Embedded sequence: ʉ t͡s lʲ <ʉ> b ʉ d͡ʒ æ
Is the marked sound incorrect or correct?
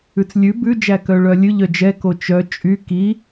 correct